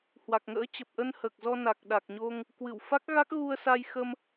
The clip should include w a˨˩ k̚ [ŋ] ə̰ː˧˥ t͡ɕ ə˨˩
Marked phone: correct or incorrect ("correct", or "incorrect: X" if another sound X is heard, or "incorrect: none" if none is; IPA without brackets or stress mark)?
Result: correct